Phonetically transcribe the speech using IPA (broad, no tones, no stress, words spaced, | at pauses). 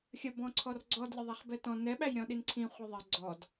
xʲəbɔ̃ ǀʰɔrɡ͡ǀɔd lʲəðˤaχbɛtɔ̃ nɛɓæjɾʲɔ̃ ɗinǀʰĩ χʷəðˤɛ ɡ͡ǀɔd